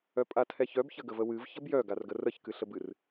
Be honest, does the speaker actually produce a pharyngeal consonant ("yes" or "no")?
no